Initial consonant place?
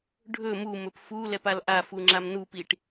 retroflex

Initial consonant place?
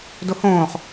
alveolar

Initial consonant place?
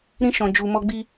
alveolar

